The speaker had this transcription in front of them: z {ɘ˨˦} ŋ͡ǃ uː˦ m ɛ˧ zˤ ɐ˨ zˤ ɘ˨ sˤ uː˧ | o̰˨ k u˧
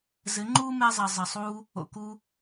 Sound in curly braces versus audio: correct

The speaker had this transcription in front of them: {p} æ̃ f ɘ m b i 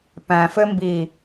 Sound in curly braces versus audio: correct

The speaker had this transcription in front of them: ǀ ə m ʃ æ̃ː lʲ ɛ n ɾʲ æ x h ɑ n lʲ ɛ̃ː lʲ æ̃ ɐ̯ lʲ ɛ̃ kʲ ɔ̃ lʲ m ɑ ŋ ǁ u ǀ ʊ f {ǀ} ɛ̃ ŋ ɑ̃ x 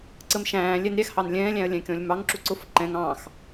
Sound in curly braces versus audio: incorrect: ǃ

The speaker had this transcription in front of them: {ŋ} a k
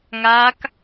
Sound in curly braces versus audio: correct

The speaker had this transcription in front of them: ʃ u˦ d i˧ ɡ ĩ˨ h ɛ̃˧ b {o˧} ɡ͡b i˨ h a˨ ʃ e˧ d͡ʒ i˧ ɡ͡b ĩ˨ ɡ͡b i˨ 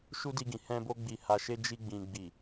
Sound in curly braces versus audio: correct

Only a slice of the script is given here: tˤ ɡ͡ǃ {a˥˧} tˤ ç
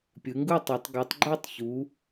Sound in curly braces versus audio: correct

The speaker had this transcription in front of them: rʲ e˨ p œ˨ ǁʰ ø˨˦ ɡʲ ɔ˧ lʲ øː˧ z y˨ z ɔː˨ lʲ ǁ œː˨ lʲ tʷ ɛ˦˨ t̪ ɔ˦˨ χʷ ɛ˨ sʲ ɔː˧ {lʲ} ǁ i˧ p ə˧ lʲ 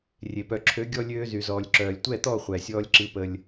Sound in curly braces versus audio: correct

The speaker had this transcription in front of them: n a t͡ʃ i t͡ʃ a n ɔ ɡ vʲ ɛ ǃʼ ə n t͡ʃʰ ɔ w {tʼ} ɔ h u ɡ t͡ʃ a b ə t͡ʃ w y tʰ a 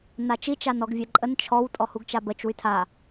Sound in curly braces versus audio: correct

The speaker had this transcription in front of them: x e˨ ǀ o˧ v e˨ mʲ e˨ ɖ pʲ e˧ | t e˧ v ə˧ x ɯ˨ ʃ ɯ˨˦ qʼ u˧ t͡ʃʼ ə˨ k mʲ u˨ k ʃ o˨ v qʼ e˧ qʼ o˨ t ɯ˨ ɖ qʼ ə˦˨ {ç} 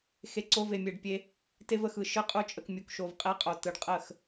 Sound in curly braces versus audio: incorrect: x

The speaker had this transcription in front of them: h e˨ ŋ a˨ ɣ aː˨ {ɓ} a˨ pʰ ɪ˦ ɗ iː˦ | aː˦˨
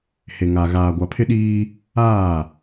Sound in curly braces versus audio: incorrect: ɡʷ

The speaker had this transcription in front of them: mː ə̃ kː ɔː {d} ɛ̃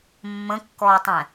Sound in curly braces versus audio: incorrect: tˤ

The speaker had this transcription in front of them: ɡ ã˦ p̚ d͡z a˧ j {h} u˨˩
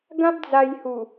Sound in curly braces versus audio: correct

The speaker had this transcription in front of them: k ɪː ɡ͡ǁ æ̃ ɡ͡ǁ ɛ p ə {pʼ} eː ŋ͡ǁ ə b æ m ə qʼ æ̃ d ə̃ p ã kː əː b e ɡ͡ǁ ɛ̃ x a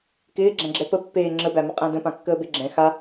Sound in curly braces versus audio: incorrect: pː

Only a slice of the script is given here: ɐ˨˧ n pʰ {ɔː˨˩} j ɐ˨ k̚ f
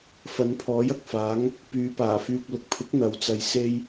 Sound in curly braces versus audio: incorrect: ɔː˨˥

